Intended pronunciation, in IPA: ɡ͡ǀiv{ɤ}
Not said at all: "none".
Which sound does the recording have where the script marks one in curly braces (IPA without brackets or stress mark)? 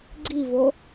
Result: o